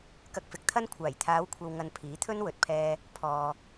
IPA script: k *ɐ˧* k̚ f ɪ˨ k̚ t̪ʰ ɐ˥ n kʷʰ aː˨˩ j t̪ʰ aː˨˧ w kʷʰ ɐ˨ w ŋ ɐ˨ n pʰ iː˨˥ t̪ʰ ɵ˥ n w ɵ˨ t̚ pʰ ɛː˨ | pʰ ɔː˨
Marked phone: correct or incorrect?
correct